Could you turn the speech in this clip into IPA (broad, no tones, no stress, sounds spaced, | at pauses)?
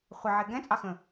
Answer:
χʷ ə ʕ e ɡ ɛ̃ t͡sʼ ɑ x ə̃